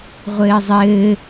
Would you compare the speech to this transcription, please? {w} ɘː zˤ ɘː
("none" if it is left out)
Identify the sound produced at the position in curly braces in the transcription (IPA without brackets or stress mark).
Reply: ʁʷ